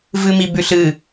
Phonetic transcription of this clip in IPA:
v ɨ m i b ʉ ɬ ɨ

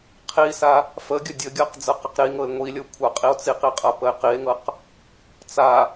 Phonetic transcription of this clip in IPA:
qʰ i s a | f ə ɡʲ ə dʲ ə ɡʲ ɤ q d͡z ɤ q ə q ɾ i ŋ ɤ e̯ ŋʷ i lʲ ɤ kʷʰ a qʼ i o̯ t͡s i q i qʼ a p ə e̯ q i e̯ ŋ ɤ q | t͡s a

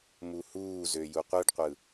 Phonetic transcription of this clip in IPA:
m u h uː z ø j u qʷ ɯ ɖ qʷ ɯ

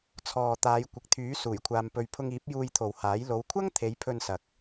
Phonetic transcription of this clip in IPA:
t͡sʰ ɔː˨ t̪ aː˨˧ j kʷ ɪ˨ k̚ t̪ʰ yː˨˥ s uː˨˩ j kʷʰ aː˨ m p ɵ˨ ɥ pʰ ʊ˧ ŋ iː˨˥ p̚ j uː˧ j t̪ʰ o˨ w h aː˨˥ j l o˨˧ w kʷʰ ɐ˥ ŋ t̪ʰ e˨˥ j pʰ ɵ˧ n s ɐ˨ k̚

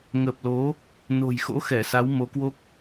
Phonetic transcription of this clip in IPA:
ŋ ə˨˩ p̚ l o˨˦ | n o̤˨˩ j x o̰˧˥ x ɛ˧˩ s a˨˦ w m o˨˦ k w o˦˥ k̚

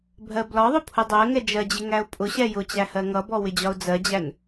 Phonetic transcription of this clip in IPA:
bʱ ɜ b l ɒ ðˤ ʊ pʰ ʊ dˤ ɜ ŋ ɛ d͡ʒ ɜ d͡ʑ ɪ ŋ æ ʊ̯ pʼ ʊ ɕ ɛ j ʊ t͡ɕ æ h ɜ ŋ ʌ b ɔ w ɪ d͡ʑ ɒ ʊ̯ d͡z ɜ d͡ʑ æ n

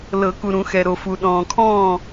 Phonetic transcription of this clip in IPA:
l ɤ˨˩˦ k u˨ ɾ ũ˨˩˦ x ɛ˨ ɾ o˨ f u˨ ɗ ɔ̃ː˨ kʰ ɔ̃ː˥˨

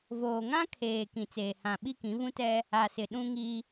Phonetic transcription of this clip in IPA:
v oː˨ ŋ ã˦ kʰ eː˨ k ĩ˨ t͡s eː˨ h ã˨ ɓ i˦ k ĩ˨˦ v ũ˦ t ɛ˦ | a˨ s ɪ˨ ɗ ũ˦ ŋ i˦

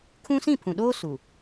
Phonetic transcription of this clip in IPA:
kʰ ũ˦ s ĩ˦˨ pʰ ũ˨ ɗ oː˦ s u˨

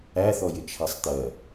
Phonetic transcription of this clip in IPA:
æ θ ɔ j ɪ t͡ʃʰ æ sˤ t̪ ɜ

